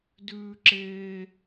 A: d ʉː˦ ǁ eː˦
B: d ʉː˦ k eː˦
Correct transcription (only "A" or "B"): A